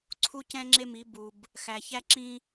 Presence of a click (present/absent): present